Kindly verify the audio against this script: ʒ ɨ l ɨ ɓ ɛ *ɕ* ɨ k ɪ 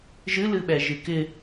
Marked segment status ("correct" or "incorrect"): incorrect